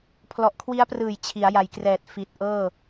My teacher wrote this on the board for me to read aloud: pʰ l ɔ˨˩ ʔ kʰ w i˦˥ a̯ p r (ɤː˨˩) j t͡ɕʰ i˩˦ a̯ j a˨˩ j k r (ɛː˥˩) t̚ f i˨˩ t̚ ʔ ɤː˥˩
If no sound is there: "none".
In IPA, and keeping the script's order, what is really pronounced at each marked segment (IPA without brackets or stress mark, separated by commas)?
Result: ɯː˨˩, ɛː˨˩